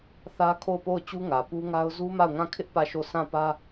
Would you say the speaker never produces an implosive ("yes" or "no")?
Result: yes